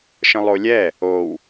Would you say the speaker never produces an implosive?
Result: yes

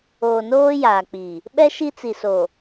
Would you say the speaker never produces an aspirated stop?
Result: yes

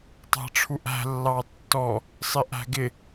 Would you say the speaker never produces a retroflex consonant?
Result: no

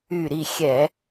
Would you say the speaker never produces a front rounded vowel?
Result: no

